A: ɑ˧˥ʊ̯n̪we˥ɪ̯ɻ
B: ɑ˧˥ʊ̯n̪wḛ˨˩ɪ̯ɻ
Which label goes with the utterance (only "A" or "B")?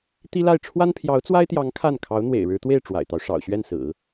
B